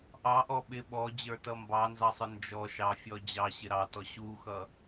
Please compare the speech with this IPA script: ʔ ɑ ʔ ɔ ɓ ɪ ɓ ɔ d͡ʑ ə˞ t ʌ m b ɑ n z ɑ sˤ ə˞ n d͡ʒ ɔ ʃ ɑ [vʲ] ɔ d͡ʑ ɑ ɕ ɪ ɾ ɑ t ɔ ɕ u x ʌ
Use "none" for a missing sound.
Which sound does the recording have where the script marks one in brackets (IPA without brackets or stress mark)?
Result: fʲ